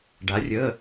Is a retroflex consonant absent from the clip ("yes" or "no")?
no